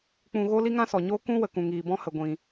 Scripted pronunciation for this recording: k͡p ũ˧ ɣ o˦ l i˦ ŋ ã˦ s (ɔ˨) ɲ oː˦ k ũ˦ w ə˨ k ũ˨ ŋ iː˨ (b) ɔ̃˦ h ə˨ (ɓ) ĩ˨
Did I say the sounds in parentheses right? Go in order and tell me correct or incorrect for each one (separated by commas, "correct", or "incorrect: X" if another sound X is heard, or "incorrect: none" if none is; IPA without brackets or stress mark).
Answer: correct, correct, incorrect: ɡʷ